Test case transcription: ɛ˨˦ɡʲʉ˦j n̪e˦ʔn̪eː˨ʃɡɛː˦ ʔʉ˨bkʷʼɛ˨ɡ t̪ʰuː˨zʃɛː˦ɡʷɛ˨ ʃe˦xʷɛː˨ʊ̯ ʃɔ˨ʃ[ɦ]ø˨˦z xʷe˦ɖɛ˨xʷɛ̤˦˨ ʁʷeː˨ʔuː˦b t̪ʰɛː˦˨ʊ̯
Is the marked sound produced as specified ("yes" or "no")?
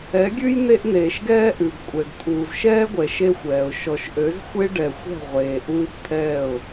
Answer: no